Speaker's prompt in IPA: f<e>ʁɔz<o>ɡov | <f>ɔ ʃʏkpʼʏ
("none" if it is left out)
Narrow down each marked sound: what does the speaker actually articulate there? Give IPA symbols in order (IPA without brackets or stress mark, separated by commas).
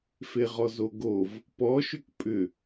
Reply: e, o, p